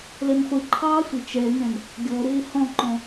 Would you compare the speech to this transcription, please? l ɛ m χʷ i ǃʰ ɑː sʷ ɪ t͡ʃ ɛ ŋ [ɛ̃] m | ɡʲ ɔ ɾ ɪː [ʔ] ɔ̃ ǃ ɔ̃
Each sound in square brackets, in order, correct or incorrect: correct, incorrect

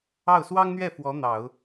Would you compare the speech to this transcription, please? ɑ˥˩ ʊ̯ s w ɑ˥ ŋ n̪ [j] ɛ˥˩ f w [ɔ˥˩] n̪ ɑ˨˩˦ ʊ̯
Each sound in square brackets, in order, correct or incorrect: incorrect, incorrect

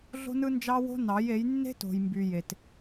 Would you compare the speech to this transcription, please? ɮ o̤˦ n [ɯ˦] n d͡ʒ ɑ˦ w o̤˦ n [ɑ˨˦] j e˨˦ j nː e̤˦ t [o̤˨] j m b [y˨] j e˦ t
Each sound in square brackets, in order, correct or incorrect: correct, correct, correct, correct

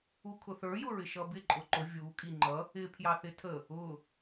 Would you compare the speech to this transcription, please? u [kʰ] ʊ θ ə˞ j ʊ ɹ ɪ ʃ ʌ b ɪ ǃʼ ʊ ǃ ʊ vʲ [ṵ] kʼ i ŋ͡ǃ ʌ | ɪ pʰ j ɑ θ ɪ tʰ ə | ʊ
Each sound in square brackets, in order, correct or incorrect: correct, incorrect

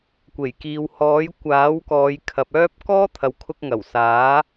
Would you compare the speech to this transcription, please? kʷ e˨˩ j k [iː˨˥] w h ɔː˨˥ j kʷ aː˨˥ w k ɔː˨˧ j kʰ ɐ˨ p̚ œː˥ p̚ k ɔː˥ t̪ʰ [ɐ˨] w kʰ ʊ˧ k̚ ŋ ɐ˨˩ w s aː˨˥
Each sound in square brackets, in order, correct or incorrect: incorrect, correct

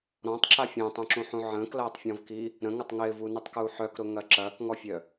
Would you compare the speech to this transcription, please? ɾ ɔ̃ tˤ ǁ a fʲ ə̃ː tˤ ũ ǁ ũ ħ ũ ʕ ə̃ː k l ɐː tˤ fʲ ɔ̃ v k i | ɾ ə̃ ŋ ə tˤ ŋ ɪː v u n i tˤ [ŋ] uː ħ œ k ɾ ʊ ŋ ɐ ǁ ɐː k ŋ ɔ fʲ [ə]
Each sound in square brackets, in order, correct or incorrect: incorrect, incorrect

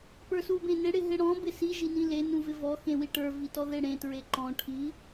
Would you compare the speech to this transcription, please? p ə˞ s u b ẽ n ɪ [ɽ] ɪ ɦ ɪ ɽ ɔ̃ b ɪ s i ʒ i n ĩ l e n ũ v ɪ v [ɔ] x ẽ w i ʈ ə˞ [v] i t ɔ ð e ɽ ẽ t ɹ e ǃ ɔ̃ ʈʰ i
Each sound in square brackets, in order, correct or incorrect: correct, correct, correct

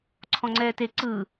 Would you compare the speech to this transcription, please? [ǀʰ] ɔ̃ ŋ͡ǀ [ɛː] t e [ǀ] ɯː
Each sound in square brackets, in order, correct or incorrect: correct, correct, correct

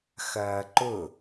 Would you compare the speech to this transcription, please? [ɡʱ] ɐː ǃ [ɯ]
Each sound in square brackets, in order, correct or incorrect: incorrect, incorrect

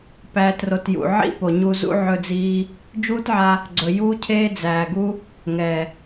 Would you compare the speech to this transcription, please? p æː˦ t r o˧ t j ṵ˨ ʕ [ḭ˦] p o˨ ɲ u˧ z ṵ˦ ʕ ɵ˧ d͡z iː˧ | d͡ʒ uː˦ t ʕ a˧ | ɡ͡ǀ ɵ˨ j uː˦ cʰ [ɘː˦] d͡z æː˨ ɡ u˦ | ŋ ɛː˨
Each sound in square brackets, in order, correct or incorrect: correct, incorrect

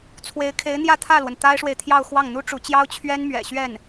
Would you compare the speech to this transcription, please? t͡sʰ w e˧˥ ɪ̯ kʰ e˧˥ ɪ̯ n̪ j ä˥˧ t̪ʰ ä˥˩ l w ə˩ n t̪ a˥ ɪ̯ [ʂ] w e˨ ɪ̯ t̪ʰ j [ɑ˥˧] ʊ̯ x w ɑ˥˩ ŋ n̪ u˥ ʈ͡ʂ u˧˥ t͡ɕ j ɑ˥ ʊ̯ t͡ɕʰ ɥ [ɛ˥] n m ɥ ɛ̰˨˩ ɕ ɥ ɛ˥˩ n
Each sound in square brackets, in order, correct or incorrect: correct, correct, correct

